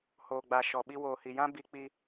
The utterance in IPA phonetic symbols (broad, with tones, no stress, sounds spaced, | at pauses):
h o˨ ɡ͡b a˨ ʃ ɔ˨ ɓ i˦ w oː˨ h i˨ j ã˦ b i˦ k͡p i˦